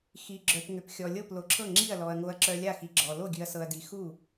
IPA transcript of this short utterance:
x i˨ ɡ͡ǁ œ˨ p ŋ ʏ˨ p xʲ ɔ˨ lʲ ɤ˥˩ p l o˨ ǁʰ ɤ˥˩ ŋ͡ǁ i˥˩ ɐ̯ l ɔ˨ ɐ̯ ŋ o˨ ɐ̯ ǁ œ˨ lʲ a˥˩ x i˨ ɡ͡ǁ ɔ˨ l o˥˩ ɡʲ ʉ˨ ɐ̯ s ɤ˨ ɐ̯ d i˨ x u˥˩

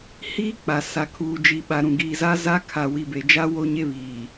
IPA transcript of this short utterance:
h iː˦ k͡p a˨ s a˨ kʰ uː˨ d͡ʒ i˨ ɓ a˨ ɾ ũ˨ ɡ iː˨ z a˦ z a˦ kʰ a˨ w i˨ b e˨ d͡ʒ a˦ w o˦ ɲ e˦ β iː˨

